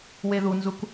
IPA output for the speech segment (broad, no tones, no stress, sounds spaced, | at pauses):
w e ð u n z u k